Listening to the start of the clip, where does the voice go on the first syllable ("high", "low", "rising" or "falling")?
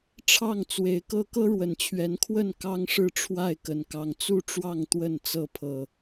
falling